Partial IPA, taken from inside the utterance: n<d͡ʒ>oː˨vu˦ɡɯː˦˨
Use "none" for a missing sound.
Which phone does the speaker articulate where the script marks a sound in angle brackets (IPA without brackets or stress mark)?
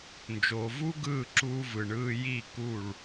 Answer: d͡ʒ